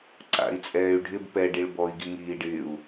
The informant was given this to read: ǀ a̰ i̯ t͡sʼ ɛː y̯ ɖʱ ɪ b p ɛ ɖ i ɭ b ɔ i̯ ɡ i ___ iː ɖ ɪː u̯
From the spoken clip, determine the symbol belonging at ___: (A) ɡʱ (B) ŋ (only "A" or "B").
B